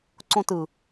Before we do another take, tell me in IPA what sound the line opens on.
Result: ǀ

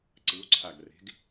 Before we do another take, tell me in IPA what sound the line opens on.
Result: ǀ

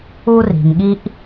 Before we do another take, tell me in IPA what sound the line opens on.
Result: u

